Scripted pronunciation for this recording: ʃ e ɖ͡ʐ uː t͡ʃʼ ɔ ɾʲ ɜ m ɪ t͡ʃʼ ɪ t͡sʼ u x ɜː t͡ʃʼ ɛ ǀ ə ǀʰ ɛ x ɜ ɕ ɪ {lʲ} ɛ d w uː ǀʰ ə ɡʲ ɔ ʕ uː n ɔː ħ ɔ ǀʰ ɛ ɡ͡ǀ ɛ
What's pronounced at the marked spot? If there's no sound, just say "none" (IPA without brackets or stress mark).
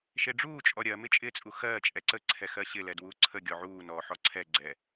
l